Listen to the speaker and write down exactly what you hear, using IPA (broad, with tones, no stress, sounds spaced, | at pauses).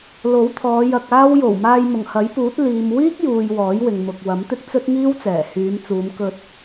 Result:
l o˨˥ w t̪ʰ ɔː˨˧ j ɐ˧ k̚ aː˥ w j o˨˩ w m aː˧ j m ʊ˨˩ ŋ h ɐ˨˥ j p uː˨˥ t̚ l iː˨ m w iː˥ k̚ j uː˨ j w ɔː˨˥ j w ɪ˨ ŋ m ʊ˨ k̚ w ɐ˨˥ m t̪ ɪ˥ k̚ t͡s ɵ˥ t̚ ŋ iː˥ w t͡s ɛː˨˩ h yː˨˧ m t͡s uː˨˧ m k ɵ˧ t̚